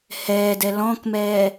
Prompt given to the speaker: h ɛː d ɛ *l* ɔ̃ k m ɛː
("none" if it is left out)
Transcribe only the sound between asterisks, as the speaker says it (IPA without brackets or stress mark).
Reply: l